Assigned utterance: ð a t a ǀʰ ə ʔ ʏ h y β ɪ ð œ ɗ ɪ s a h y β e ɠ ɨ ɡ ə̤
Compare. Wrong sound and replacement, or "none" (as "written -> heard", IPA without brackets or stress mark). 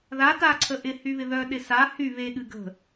ʏ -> ɪ